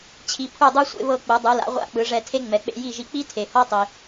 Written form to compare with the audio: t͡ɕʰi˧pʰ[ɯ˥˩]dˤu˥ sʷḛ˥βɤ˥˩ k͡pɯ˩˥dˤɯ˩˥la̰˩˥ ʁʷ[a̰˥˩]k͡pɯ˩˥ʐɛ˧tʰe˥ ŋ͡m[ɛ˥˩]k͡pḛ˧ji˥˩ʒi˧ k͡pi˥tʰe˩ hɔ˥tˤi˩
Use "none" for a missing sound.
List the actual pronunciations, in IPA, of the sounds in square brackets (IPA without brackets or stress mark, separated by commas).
u˥˩, a̰˥˩, ɛ˩